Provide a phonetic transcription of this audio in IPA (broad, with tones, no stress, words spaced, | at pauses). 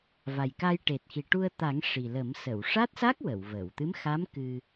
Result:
va˨˩jka˧j ʈe˨˩t̚xi˨˩ʈu˧ə̯ t̪a˨˩˦ŋ ʂi˨˩lə˨˩˦m sə˨˩˨wʂa˦˥t̚sa˦˥k̚ wə˨˩˨wvə˨˩˨w t̪ɨ˧˥mxa˧˥m kɨ˧